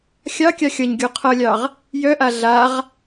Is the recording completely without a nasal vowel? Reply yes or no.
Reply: yes